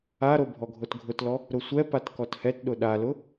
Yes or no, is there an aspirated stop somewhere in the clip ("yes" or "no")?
no